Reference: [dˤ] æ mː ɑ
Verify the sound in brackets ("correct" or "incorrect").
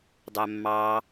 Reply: correct